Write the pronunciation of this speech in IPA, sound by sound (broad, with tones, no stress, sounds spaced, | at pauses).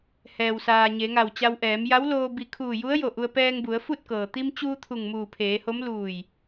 h ɛː˩ w s aː˩ ɲ e˩˧ ŋ a˧˩ w t͡ɕ a˧ w ʔ ɛː˩˧ m j a˧˥ w l oː˧ b i˧˩ kʰ uː˧˩ j u˧˥ ə̯ j o˧˩ ʔ u˧ ə̯ p ɛː˧ ŋ b u˩˧ ə̯ f u˥˨ t̚ k ɤː˩ t̪ i˧ m t͡ɕ uː˧ t̪ʰ u˧˩ ŋ m uː˧˩ pʰ eː˩˧ h o˧˥ m l uː˧˩ j